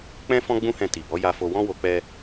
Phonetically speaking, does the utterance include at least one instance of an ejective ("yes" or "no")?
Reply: no